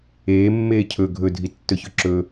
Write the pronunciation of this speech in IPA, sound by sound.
eː mː eː cʰ ɵ ɡʱ ɵ dʱ i tː ɵ ç ɵ ǁ ɵ

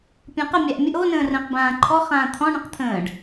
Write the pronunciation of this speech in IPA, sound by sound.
pʲ ɔ̃ q ə mʲ a ʔ mʲ ə ʔ o n ə̃ː r ə̃ː q b ãː ǃʰ ɔ χ ãː t̪ʰ ɔ̃ ɳ ə̃ q t̪ʰ ə̃ː ɖ

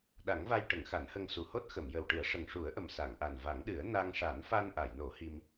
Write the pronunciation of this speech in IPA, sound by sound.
ɗ a˨˩˦ ŋ v a˧ j ʈ ə˨˩˦ ŋ x a˨˩˦ n h ə˧ ŋ s u˨˩ h o˦˥ t̚ x ə˨˩˨ m j ə˨˩ w ʈ ɨ˨˩˦ ə̯ ʂ ə˨˩ ŋ ʂ u˨˩˦ ə̯ ʔ ə˨˩ m s a˨˩˨ ŋ ʔ a˨˩ n v a˨˩˦ ŋ ɗ ɨ˨˩˦ ə̯ n a˧ ŋ ʂ a˨˩˦ n f a˧ n ʔ a˨˩˨ j n o˨˩˦ h i˧ m

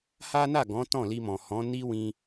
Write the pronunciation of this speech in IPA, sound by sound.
h a˦ n a˦˨ ɡ ɔ̃˨˦ t ɔ̃˦˨ l i˧ m ɔ̃˨ h ɔ̃˨˦ n i˦ w ĩ˧

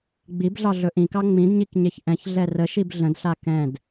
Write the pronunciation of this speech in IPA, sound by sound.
ɡ͡b i b ɮ ɑ ɮ ɵ ʔ ĩ k ɑ ŋ͡m ĩ d ɲ i k ɲ e ç ʔ ɛ̃ ç ɮ ɛ r ə ʃ i b ɮ ə̃ d ɬ a k ɛ̃ d

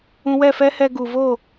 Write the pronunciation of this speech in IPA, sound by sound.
ũ˧ w ɛ˦˨ f ɛ˦ h ɛ˧ ɡ u˨ v o˦˨

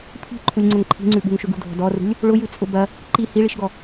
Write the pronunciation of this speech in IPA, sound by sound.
pʰ i̤ ǃʰ u lʲ ŋ͡ǀ ʊ ŋ ǃʰ i̤ ŋ͡ǀ ʉ ɓ ṳ ŋ ʃ ʏ ɡ ṳ dʱ ɔ̤ d ɔ r ṳ lʲ | ɭ ʊ j ʉ t͡sʼ ʊ b ɐ | ǃ i h i ɭ i ʃ ɡ ɔ

